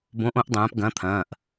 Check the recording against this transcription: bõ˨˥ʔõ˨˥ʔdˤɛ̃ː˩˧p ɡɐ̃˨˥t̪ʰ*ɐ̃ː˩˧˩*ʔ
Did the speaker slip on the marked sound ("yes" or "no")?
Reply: no